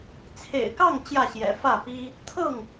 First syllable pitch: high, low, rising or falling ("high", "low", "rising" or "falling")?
low